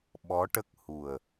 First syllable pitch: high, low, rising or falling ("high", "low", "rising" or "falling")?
rising